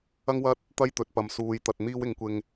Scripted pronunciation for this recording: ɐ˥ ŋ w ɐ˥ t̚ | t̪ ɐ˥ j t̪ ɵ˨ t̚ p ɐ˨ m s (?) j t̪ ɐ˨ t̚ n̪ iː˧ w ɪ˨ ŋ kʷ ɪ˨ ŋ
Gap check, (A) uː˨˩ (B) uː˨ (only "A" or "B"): B